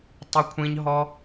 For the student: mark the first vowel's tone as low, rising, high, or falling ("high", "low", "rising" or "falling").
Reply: high